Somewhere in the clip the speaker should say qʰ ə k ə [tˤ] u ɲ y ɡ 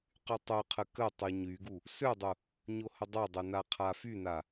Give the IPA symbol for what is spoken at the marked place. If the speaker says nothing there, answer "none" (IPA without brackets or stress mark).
tˤ